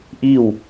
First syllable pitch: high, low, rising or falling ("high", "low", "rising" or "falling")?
falling